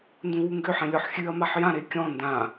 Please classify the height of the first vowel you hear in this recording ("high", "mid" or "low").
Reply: high